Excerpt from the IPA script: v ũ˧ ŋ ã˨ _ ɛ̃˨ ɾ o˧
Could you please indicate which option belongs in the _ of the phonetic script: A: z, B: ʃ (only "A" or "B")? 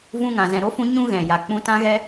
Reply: A